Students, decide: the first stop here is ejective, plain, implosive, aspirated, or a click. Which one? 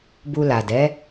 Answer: plain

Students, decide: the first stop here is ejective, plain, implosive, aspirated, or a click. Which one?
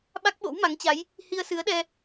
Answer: implosive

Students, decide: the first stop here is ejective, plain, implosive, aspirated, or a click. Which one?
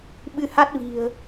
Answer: implosive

